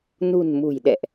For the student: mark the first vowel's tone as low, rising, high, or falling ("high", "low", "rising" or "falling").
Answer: low